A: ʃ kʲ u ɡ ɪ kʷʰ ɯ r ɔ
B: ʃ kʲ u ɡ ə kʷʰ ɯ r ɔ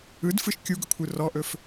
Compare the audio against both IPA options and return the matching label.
B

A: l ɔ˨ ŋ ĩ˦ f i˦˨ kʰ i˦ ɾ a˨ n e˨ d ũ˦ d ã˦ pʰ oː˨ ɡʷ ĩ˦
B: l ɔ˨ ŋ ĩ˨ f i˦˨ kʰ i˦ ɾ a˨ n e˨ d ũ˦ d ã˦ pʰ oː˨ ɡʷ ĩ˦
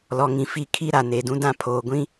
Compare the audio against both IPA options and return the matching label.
B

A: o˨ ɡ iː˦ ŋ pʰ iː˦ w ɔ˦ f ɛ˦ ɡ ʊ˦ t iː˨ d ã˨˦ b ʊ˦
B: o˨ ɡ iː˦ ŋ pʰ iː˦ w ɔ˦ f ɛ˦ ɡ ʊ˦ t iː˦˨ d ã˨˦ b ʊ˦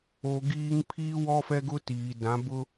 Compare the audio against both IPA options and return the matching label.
A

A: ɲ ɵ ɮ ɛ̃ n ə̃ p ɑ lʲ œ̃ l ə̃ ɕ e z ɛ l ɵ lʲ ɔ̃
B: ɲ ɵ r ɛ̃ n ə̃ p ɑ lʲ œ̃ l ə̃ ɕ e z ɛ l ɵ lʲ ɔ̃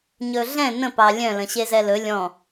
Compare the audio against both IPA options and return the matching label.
A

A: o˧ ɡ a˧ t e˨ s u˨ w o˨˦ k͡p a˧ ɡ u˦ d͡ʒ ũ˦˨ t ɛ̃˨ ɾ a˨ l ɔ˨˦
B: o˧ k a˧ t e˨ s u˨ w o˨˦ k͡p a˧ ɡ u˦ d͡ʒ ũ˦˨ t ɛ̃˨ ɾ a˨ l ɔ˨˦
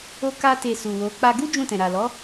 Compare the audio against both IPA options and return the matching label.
B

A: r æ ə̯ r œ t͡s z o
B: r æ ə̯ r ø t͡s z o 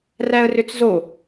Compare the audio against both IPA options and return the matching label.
B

